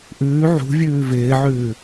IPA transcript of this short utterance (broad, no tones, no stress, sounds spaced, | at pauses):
ʔ ʉː ʕ ṳ vʲ ʉː v ɪː ʕ ʉː